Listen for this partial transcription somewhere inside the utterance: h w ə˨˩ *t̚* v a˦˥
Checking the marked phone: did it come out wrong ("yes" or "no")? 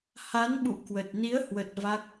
no